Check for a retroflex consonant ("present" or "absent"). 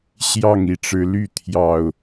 present